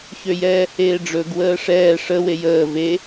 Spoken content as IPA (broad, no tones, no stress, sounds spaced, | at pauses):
ç ø j ɛː h eː ɖ͡ʐ ɵ ɡ w əː ʂ ɛː ʂ ə w e j əː v e